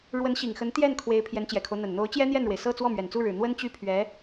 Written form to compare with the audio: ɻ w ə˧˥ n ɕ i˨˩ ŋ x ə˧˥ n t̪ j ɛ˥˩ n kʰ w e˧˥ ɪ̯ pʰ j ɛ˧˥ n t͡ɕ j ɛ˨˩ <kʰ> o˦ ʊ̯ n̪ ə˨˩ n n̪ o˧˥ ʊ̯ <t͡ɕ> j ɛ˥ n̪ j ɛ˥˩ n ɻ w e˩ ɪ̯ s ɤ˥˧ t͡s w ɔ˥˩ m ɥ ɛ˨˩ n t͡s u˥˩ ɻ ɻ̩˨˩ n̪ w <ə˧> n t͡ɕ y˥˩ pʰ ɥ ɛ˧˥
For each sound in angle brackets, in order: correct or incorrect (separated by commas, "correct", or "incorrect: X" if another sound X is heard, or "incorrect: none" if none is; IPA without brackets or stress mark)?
correct, correct, incorrect: ə˥